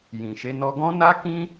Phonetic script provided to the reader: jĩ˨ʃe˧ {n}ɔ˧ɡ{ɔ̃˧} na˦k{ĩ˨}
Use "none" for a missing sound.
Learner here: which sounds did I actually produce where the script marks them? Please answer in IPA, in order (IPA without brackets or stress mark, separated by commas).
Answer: n, ɔ̃˦, ĩ˦